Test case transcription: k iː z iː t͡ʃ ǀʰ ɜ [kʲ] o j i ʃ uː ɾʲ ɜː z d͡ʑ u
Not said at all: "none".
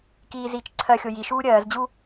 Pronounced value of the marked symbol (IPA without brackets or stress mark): xʲ